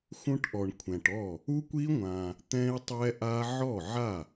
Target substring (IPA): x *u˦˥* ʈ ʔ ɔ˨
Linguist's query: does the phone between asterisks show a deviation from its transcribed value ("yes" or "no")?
yes